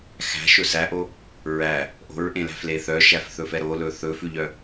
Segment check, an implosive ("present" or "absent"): absent